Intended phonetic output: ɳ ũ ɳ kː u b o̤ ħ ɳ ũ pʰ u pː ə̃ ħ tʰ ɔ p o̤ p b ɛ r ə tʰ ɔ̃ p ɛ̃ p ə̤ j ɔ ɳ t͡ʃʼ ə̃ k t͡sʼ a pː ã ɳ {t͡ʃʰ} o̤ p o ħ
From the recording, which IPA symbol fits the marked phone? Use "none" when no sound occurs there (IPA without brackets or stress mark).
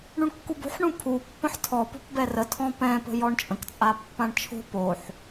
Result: t͡ʃʰ